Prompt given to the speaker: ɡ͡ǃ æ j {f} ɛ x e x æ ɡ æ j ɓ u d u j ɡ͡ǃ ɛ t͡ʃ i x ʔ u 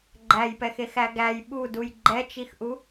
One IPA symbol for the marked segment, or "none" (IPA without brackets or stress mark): p